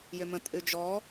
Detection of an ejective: present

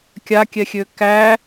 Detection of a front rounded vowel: present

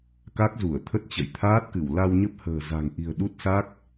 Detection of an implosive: present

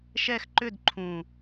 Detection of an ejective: absent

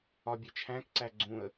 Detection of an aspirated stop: present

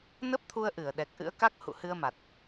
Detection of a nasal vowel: absent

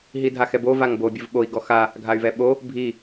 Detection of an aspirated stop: absent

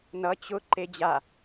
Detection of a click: present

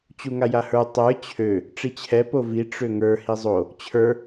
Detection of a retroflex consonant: present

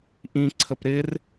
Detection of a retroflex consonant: absent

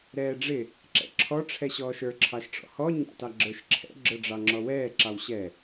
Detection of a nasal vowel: absent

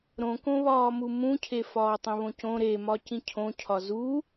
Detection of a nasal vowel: present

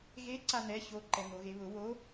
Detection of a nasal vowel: absent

